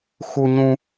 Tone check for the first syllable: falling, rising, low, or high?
high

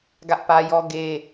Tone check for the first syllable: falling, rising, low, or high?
high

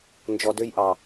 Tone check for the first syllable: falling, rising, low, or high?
low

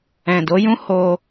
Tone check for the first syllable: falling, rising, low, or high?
low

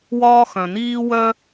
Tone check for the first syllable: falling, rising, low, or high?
high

